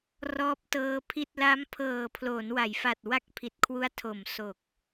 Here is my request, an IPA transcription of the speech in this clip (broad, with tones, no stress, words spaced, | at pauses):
rɔː˦˥p̚tɤː˦˥pʰi˥˩t̚ la˦˥m pʰɤː˨˩pʰloː˩˦n wa˩˦jfa˨˩t̚ wa˥˩k̚pʰi˨˩t̚kʰwu˦˥a̯ tʰo˨˩m so˨˩k̚